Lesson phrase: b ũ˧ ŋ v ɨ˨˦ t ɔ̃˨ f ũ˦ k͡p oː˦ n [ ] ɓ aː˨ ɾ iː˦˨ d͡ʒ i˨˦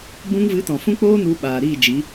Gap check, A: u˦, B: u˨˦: B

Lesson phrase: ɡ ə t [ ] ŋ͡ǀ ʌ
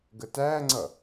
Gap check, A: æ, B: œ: A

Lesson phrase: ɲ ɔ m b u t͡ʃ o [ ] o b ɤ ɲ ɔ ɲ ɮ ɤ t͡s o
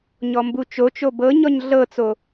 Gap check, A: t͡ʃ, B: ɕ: A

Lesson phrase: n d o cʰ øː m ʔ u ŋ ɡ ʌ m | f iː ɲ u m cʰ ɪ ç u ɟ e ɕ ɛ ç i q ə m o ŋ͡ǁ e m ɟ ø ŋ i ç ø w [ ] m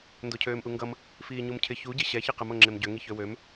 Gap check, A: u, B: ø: B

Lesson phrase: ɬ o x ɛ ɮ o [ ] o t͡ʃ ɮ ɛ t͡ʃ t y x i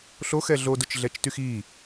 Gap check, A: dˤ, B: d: B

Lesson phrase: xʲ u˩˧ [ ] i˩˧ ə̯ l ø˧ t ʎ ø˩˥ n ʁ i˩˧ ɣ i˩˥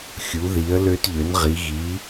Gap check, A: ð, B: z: A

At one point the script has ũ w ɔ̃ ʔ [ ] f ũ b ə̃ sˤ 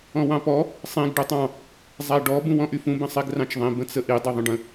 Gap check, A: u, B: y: B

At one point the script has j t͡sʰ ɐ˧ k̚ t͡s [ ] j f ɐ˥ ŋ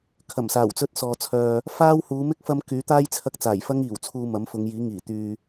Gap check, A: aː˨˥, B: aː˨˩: B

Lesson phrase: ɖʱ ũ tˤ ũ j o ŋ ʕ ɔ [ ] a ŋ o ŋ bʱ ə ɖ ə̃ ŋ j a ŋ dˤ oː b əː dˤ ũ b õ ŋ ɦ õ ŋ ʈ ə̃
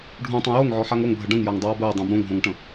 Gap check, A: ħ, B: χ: A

